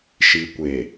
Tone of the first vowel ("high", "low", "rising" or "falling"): low